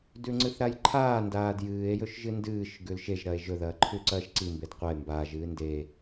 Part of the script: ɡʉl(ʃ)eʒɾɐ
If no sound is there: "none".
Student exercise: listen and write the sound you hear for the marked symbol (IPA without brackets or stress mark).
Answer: ʃ